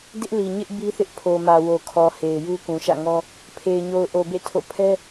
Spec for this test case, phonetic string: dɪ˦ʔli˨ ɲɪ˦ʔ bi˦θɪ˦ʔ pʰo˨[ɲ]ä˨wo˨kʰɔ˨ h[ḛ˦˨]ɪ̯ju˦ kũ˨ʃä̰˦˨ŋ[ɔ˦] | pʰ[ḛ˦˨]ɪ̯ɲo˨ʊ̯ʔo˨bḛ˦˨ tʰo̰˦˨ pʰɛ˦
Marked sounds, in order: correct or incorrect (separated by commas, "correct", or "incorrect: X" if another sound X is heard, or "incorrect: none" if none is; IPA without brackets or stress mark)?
incorrect: m, incorrect: e˨, correct, incorrect: e˨